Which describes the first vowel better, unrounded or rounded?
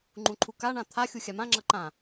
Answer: rounded